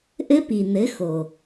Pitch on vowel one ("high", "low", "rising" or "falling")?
high